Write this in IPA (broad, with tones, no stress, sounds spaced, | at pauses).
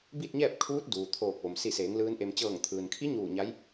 b i˥˨ t̚ ɲ ɛː˥˨ p̚ kʰ uː˧˥ t̚ d uː˩ t̪ʰ oː˧˩ k̚ ʋ o˩ m s i˧˩ s eː˩˧ ŋ l ɯː˧˥ n ʔ e˧ m t͡ɕ ɤː˧˩ ŋ t̪ʰ ɯː˩ n kʰ i˧˥ ɲ uː˧˩ ɲ a˧˥ j